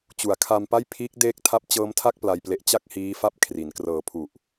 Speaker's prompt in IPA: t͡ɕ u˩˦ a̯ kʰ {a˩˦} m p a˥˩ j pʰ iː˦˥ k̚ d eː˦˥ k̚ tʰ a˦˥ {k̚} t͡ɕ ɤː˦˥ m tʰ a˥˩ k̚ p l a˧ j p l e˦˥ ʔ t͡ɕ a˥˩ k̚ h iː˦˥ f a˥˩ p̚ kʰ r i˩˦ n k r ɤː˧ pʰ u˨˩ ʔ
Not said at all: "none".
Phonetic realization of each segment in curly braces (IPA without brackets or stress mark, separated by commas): a˧, p̚